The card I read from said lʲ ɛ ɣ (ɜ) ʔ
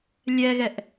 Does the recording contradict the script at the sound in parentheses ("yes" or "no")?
yes